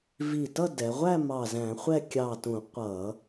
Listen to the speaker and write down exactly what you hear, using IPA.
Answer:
v i˧˩ t ʌ˥˧ d ɛ˩˧ ʁʷ æ˥˧ m ɑ˧˩ z æ̃˧˩˧ χʷ ɛ˥˧ kʲ ɑ˧˩ t ũ˧˩˧ qʷ ʌ˧˩˧

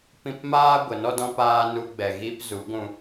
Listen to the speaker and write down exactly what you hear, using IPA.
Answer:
p ĩ˧ p m aː˦ ɡʷ ə˨˦ n ɔ˦ d ɔ̃˦ p aː˦ n u˧ ɡ͡b ɛ˨ ɣ iː˦ p z u˨˦ ɡʷ ũ˧

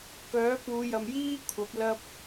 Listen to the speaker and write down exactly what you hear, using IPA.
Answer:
k œː˨˥ p uː˨˧ j ɐ˨ m j iː˥ kʷʰ ɐ˨˥ p̚ l ɐ˥ p̚

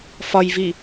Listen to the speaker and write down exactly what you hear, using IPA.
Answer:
f ɒ j v i

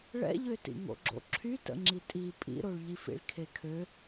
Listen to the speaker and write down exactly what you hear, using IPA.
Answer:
ɭ ɛ̰ ʎ ø t ḭ ŋ o̰ ɡ͡ǁ o̰ ǁʰ y t ə̰ ŋ͡ǁ i tʼ i pʼ ḭ ɾ o ɭ ʎ i f ḭ ɭ kʰ e kʰ ø

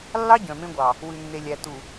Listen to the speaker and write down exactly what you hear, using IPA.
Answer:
lː ɑ˦ ɟ œ̃˨ m ẽ˦ ɡʷ ɑ˨ | w ʉ˨ nː e˨ lʲ æ˨ t u˨

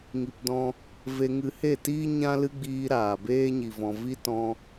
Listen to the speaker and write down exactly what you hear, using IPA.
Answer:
ŋ i˧ p d ɔ̃˦ | v e˧ ŋ ɨ˧ h e˦˨ t iː˦ ɲ ã˦ l ɨ˦ ɡ͡b iː˧ ɾ aː˨ b eː˦ ɲ i˨ v ɔ̃˨ v i˦ t ɔ̃˧

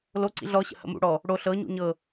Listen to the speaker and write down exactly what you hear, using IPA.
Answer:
l o ǀ ḭ ɮ ɔ ɕ ə̰ h ə̰ m ṵ ɽ ɔ | ɽ o ɬ ɤ ɲ ṵ ɲ ɤ

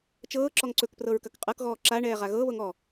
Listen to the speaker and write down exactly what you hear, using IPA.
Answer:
t͡ʃ ɤː ǁ ɔ ŋ ǀ ɵ k p r ɤ ɹ k ɐ k qʼ ɤ k ɣ ɔː ǁ a ɳ ɛː ʁ a ɣ ɤ β ɤ ŋ ɔ

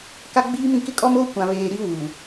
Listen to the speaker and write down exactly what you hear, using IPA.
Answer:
k a˦ ɡ͡b iː˦ m ĩ˨ k ɪ˦ kʼ ɔ˦ m oː˦ kʷ ã˨ β eː˨ ɾ i˦ w u˨

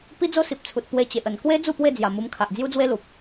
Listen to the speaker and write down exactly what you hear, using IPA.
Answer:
p i˦ d͡z o˦ s i˨ p̚ t͡sʰ u˨ t̚ p w e˧ t͡ɕ e˨ ʔ ə˨˩ n k w e˦ d͡z u˥˧ p w e˥˧ d͡z j a˨˩ m u˧ m kʰ a˨ ʔ d͡z j u˦ d͡z w e˦ l u˨ p̚

